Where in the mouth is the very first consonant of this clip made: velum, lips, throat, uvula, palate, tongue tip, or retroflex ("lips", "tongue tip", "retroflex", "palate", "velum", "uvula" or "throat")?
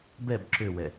lips